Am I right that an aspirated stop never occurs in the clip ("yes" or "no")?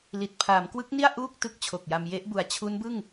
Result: no